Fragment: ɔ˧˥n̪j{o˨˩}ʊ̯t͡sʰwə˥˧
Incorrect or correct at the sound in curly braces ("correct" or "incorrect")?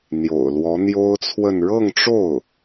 incorrect